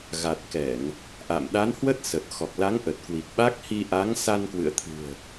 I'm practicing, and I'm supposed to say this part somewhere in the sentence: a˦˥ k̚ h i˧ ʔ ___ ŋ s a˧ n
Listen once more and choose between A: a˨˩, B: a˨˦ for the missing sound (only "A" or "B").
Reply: B